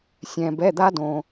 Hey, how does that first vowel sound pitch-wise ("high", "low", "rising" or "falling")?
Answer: low